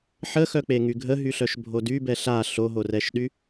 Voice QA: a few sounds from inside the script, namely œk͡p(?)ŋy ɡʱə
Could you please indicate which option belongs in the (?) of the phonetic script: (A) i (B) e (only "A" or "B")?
B